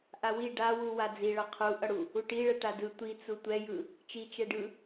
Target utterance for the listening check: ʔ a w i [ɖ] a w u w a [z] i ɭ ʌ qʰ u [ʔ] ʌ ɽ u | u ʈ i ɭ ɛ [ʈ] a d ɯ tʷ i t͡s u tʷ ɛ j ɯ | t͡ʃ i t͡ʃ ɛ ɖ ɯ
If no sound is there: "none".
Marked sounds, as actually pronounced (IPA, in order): ɖ, d͡z, ʔ, ʈ

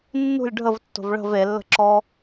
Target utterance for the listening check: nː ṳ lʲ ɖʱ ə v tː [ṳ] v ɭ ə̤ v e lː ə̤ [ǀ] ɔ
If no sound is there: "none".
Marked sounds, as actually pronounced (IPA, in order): o̤, ǁ

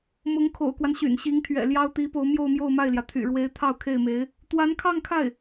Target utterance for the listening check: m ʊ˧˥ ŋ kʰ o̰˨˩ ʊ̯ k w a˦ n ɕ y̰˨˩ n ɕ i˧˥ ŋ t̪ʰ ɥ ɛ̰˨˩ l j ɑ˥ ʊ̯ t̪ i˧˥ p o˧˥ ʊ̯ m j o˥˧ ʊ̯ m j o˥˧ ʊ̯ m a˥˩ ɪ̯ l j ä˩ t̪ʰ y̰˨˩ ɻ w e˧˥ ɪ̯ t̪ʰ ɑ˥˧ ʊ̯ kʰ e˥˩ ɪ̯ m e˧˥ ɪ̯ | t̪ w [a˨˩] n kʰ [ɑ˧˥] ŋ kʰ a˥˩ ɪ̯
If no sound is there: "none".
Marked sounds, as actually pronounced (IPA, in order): a˧˥, ɑ˥˧

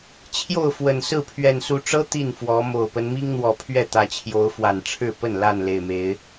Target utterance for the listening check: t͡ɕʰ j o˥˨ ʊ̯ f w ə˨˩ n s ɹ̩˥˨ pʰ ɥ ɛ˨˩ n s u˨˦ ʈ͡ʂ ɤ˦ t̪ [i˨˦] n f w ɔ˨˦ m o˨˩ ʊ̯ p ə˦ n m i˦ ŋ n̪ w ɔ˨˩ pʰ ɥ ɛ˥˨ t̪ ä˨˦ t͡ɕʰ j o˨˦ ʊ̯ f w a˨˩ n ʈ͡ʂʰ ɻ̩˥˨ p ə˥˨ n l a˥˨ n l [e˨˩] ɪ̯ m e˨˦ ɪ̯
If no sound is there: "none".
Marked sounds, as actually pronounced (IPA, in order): i˥˨, e˨˩

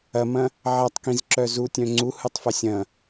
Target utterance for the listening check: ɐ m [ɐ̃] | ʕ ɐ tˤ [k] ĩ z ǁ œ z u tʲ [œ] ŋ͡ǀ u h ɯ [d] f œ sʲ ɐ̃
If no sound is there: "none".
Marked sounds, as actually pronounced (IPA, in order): ɐ̃, k, œ̃, tˤ

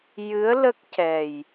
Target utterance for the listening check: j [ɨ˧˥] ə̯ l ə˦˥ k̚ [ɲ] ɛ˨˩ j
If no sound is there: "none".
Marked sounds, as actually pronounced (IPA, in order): ɨ˧˥, c

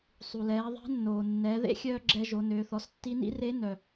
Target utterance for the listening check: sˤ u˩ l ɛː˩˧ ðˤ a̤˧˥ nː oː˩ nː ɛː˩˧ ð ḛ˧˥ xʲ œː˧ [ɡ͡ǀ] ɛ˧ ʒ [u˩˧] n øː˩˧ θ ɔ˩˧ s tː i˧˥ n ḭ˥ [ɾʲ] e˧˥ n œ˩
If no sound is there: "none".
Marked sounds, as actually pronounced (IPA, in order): ɡ͡ǁ, o˩˧, r

